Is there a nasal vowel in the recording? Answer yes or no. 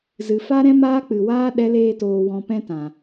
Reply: yes